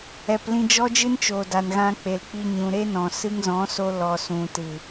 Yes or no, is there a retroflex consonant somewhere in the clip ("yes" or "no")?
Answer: no